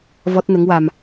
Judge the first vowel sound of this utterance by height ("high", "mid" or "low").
mid